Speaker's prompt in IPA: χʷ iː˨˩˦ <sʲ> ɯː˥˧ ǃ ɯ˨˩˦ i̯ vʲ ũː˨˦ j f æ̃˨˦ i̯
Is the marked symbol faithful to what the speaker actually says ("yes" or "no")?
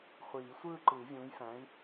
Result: no